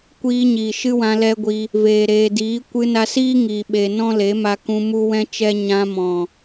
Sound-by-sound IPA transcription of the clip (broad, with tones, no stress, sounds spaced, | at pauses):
kʷ iː˧ ɲ iː˨ ʃ ɨ˦ w ã˧ l ɛ˦ ɡʷ i˧ | v eː˨ ɾ eː˨ d iː˨˦ kʷ ɨ˧ n a˧ s iː˦ ŋ iː˨ ɓ e˨ n ɔ̃˦ l e˨˦ m a˧ k ũ˧ m u˦ w ɛ̃˦ t͡ʃ ɛ˦ ɲ ã˧ m ɔ̃˨